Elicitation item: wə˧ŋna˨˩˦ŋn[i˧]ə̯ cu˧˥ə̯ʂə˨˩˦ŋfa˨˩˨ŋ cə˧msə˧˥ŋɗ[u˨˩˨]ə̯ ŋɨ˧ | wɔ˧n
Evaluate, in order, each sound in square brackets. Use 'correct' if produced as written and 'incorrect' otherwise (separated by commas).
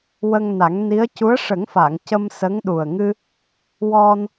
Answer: incorrect, incorrect